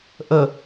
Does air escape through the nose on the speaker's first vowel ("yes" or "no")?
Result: no